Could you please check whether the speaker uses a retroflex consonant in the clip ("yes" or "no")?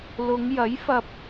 no